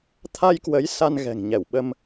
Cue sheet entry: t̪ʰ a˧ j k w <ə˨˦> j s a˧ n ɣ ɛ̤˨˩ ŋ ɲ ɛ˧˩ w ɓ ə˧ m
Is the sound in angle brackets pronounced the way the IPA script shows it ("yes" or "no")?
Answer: yes